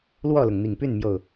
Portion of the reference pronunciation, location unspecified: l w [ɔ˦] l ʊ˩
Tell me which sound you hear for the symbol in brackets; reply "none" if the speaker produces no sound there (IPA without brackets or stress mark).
ɔ˥˨